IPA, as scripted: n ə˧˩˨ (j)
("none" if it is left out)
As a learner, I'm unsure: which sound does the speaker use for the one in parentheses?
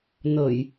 j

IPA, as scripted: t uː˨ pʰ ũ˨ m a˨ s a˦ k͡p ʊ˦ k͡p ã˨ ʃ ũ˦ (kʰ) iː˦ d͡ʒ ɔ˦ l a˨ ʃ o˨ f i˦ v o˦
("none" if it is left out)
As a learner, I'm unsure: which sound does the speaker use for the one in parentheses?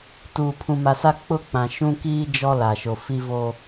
k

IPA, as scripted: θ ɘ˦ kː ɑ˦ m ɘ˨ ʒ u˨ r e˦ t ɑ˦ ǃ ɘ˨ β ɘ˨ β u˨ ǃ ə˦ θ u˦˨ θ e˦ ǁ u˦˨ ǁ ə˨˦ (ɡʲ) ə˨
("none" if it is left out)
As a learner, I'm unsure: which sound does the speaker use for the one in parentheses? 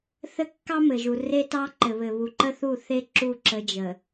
d͡ʒ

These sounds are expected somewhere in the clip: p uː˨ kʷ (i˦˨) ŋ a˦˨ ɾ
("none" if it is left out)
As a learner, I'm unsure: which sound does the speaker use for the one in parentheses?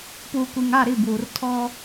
i˨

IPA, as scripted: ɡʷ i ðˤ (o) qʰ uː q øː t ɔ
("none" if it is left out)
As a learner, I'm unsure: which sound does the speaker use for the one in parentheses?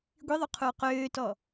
o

